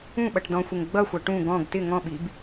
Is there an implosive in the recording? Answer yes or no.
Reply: yes